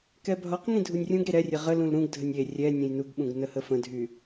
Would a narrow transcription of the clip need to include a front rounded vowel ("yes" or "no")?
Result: yes